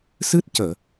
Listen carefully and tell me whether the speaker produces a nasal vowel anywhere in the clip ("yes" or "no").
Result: no